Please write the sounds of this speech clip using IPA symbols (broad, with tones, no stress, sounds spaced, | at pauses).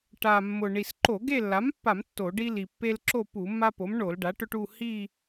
ʈ a˨˩ mː ʊ˨˩ ɳ i˨˩ s ǃ o˧˩˧ ɡ e˦˨ lː a˩˥ m pː a˧˩˧ m tː o˧˩˧ ɖ i˦ l i˨˩ pː e˦ l ǁ o˦˨ p u˧˩˧ mː a˦ p o˩˥ m ɳ o˧˩˧ l ɖ a˩˥ ʈ ʊ˦ ʈ u˦˨ h i˦˨